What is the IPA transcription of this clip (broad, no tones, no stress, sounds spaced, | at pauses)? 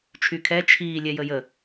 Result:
t͡ʃʰ y kʰ ɛ t͡ʃʰ iː lʲ ɛ j ə j ə